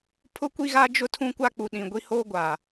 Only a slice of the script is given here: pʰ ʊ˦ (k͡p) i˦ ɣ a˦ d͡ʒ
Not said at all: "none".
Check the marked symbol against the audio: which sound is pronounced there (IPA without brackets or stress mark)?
kʷ